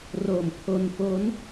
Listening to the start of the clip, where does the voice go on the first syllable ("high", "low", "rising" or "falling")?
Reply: low